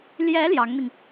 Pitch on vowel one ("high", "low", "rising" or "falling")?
rising